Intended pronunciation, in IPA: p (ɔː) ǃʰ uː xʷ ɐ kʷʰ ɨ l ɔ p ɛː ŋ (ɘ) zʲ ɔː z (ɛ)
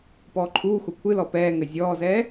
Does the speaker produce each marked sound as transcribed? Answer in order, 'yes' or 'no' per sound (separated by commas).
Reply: yes, yes, no